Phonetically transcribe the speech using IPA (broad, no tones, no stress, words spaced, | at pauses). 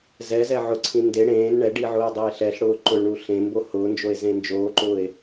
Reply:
zɛ zɛʕʊǀʰĩ nde ɽẽːn ɳɛɖi ʕʊːe̯dˤɛe̯ɬɛɬɽʊː ǃʊɭɳu ɬẽmbo hʊːnd͡ʒoe̯ zẽnd͡ʒoːǃʊːe̯